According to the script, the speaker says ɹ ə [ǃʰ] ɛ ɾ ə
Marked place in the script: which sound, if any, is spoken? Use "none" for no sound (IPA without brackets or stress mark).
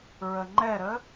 ŋ͡ǃ